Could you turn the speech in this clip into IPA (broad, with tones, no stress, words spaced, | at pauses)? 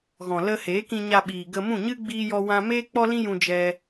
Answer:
ɣɔ̃˨lə˧heː˨˦kĩ˧ ɲa˧ɓiː˨ ɡə˧mũ˦˨ɲɨ˦ ɡ͡biː˦jɔ˦wã˦ meː˦k͡pɔ˦lĩ˦jũ˧ d͡ʒɛ˦